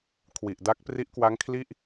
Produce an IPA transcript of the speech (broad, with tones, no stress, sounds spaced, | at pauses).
kʰ w i˨˩ ʔ d a˦˥ k̚ p r i˦˥ ʔ k w a˦˥ ŋ kʰ l i˥˩ ʔ